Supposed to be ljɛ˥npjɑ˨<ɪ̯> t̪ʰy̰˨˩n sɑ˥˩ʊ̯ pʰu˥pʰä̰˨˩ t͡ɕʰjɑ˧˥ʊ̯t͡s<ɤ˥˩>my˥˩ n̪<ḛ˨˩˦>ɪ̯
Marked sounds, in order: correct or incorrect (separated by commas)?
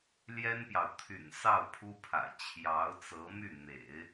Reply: incorrect, incorrect, correct